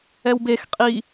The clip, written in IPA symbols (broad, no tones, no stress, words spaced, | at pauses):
ɛwbex qʼi